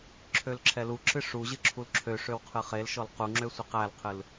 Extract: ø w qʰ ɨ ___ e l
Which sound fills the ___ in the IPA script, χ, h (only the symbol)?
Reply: χ